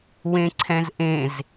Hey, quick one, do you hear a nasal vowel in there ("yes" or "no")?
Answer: yes